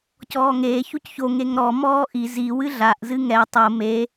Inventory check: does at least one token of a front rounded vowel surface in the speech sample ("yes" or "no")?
no